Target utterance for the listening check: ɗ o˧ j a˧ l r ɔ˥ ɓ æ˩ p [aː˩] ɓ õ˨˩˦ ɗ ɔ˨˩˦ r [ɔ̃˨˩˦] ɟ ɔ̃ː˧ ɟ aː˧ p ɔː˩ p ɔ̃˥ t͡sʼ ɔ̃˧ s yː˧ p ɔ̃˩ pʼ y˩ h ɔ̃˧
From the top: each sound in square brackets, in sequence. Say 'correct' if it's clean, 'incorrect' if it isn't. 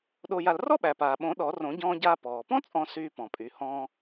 correct, incorrect: õ˨˩˦

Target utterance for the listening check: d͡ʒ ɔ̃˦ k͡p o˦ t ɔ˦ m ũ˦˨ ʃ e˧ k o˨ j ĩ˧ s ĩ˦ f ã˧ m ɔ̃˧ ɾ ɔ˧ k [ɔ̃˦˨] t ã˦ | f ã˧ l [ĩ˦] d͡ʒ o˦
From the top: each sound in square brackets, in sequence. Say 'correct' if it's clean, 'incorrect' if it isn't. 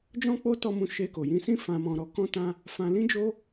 incorrect: ɔ̃˦, correct

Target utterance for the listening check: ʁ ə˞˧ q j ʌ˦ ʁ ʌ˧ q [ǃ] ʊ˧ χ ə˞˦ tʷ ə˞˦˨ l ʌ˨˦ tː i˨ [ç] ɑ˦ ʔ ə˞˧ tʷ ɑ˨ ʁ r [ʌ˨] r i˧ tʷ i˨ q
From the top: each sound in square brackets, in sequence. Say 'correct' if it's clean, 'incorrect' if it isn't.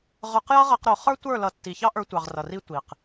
incorrect: ɾ, correct, correct

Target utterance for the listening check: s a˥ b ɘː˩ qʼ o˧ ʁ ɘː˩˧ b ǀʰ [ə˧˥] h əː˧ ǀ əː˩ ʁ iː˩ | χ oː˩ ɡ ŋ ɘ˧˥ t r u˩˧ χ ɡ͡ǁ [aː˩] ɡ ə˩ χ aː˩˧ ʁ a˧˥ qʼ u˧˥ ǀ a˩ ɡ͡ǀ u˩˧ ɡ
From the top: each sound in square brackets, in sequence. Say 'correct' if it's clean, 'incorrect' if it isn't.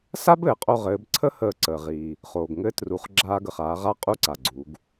incorrect: ə˥, incorrect: aː˧

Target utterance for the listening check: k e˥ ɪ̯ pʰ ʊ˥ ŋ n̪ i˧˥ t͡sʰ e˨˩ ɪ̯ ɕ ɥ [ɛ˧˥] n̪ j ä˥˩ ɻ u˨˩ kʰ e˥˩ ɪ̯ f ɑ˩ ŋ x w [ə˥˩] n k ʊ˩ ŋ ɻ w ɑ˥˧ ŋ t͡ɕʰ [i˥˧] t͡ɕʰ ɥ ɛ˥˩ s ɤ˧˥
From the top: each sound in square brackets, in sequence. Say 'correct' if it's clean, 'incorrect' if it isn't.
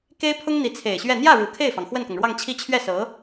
incorrect: ɛ˥˧, correct, correct

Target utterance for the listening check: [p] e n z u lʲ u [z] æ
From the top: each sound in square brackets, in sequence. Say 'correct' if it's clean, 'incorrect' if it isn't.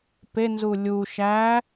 correct, incorrect: ʃ

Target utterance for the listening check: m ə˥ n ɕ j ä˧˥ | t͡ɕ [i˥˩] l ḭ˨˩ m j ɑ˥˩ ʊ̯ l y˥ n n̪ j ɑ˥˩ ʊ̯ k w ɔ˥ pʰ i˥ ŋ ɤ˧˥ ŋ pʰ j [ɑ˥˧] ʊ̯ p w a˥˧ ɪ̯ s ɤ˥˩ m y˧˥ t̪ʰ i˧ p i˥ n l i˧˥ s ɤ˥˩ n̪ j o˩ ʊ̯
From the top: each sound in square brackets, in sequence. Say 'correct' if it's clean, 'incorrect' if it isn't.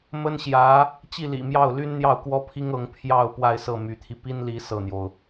correct, correct

